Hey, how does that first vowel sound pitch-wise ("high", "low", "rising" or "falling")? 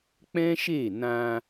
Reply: high